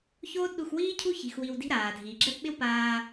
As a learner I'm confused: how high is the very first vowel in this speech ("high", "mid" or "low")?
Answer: mid